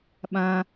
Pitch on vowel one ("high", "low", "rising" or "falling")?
high